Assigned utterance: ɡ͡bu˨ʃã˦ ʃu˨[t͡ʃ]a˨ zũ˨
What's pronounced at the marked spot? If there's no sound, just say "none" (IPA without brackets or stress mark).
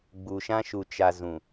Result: t͡ʃ